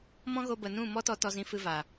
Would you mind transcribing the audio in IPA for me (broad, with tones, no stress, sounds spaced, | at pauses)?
m ɔ̃˦ ɣ o˧ b ə˨ n ũ˦˨ m ɔ˦ t ɔ˧ t ɔ˧ z ĩ˧ f ɨ˧ v a˨